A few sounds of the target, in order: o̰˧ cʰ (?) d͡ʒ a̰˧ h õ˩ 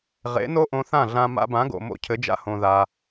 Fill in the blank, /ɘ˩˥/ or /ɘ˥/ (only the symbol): ɘ˩˥